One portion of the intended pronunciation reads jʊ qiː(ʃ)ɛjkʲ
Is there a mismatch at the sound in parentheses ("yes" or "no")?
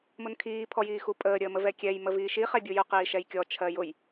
no